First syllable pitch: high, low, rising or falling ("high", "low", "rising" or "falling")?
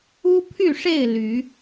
high